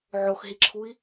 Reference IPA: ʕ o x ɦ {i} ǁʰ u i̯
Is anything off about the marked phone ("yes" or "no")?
no